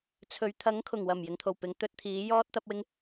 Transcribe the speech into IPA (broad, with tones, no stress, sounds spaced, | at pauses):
t͡sʰ ɵ˨ ɥ t̪ʰ ɐ˨˥ ŋ kʰ ʊ˨˩ ŋ w ɐ˨˩ m j ɪ˨˥ ŋ t̪ʰ o˨˩ w p ɪ˨˥ ŋ t̪ ɵ˧ t̚ t̪ʰ iː˨˥ j ɔː˥ t̚ t̪ ɐ˥ p̚ w ɪ˥ ŋ